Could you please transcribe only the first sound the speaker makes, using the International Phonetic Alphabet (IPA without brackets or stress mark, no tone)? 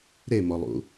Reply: ɾ